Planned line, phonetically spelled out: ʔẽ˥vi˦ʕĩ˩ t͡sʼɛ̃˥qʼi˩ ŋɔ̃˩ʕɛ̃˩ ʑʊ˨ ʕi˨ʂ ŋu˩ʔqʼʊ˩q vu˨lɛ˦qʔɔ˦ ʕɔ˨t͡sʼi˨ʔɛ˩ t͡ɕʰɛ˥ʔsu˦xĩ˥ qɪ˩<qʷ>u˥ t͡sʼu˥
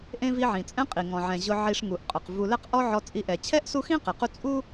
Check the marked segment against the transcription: incorrect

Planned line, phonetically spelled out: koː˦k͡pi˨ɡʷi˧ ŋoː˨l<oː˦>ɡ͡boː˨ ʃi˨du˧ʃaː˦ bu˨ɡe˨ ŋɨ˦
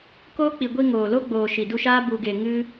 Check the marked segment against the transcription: incorrect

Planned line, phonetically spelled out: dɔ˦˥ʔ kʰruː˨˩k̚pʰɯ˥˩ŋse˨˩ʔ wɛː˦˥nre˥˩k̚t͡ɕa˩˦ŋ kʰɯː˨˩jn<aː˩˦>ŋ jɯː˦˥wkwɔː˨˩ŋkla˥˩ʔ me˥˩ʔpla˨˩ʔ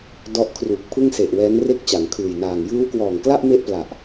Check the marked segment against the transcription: incorrect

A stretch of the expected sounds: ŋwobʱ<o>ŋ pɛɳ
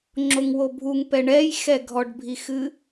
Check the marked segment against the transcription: incorrect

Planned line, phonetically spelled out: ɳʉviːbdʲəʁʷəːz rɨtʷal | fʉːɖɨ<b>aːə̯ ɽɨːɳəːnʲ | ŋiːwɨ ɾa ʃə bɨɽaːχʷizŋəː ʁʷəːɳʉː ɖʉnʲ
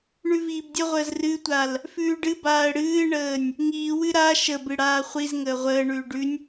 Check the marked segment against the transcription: correct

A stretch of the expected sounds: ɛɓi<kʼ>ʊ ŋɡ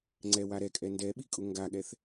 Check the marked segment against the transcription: correct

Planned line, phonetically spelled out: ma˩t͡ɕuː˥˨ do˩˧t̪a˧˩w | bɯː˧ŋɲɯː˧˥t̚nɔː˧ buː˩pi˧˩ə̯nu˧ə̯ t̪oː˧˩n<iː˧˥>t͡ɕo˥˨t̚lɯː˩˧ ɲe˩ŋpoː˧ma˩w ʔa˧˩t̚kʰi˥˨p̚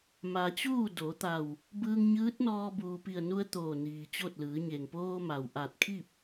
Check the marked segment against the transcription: incorrect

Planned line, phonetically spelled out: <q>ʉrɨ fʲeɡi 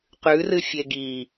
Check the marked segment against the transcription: correct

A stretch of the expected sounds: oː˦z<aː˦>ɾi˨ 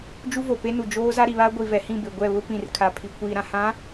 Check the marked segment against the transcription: incorrect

